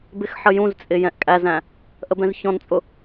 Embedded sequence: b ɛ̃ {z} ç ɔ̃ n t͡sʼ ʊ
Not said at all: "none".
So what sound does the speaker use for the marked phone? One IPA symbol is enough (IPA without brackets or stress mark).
z